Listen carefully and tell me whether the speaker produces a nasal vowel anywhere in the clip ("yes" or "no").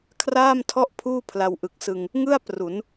no